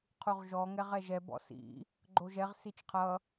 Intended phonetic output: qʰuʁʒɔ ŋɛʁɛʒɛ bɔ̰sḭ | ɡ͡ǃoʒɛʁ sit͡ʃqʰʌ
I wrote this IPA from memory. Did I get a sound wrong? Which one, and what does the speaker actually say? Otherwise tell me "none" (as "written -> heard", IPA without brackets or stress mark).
none